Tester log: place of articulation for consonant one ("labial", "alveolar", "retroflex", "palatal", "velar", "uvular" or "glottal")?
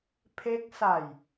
labial